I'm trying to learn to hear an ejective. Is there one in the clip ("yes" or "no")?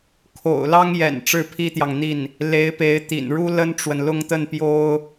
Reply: no